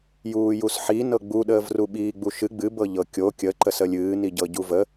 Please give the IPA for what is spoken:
j uː j u s ħ i n ɤ ɡ͡b u ɗ əː v r u ɓ iː ɡ͡b u ʃ ɨ ɡ͡b ɨ b ɤ ʎ ɤ kʲ o kʲ ə ǃ ə s ə lʲ ɨː n i ɟ ɤ ɟ u v ə

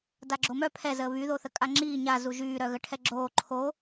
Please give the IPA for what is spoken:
d a ɡ͡ǁ o m œ pʰ ɛ z əː β y ð o θ ə kʼ a ŋ͡ǁ iː ɲ a z u ʒ yː ɾ œ ɣ ə ʈʰ ɛ ɡ͡ǁ oː ǃʰ o

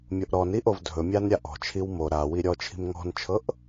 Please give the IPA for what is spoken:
mʲ o ʔ ɾ ɔ n i ʔ o v dʱ ɵ mʲ a n ɾʲ a ʔ ɔ̤ t͡ʃʰ i w m o ɾ a w i ɾʲ ɔ t͡ʃʰ i̤ m ŋ ɔ̤ n t͡ʃʰ ɤ ʔ

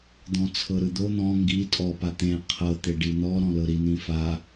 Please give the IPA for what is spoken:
d̪ ɔ̃ t͡sʰ ɤ ɾ ɯ d̪ o n̪ ɔ̃ ŋ ɡ i tʼ ɔ p a t̪ ẽ qʰ ɤ t̪ e ɖ i n̪ ɔ ɾ ɔ̃ l ɤ ɾ i n̪ ĩ f a

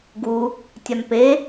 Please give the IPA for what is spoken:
ɡ u | tʲ a m p e

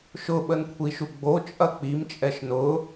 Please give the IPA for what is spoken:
ʃ ʊ ɓ ə n kʷʰ i ʃ u ɡ͡b o t͡ʃʼ ɐ k͡p i m t͡ʃʼ ɛ ʃ n ʊ

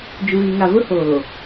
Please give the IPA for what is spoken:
d͡ʒ u˨ ɣ i˨ ŋ a˨ v ʊ˦ h oː˨

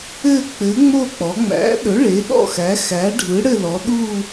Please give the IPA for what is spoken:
ɘ˦˨ k͡p ɘ˩˥ ŋ͡m o˦˨ k͡p ɔ˩˧ ŋ͡m æ̰˩˥ ɗ ɵ˩˥ ɭ e˩˥ ɗ ɔ̰˦˨ x æ˩˥ x æ˩˥ ɖʱ ɯ˩˥ ɽ ɘ˦˨ l ɔ˩˧ ɗ u˦˨

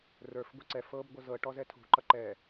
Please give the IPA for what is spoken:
r ə˞ f ɡʷ i ǀ ɛ f ɤ b ɡʷ ʌ z ɤ ʈ ɔ z ɛ tʰ ṳ ǃ ʌ ǃ ɛː

